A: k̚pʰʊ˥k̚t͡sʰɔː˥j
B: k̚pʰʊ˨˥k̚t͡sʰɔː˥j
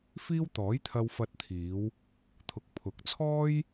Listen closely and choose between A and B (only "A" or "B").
B